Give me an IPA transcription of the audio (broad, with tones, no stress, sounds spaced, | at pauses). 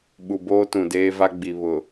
ɓ u˨ b oː˦ t ũ˨ d eː˦ v a˦ ɡ͡b i˨ β ʊ˨